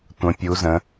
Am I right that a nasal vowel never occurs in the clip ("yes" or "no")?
no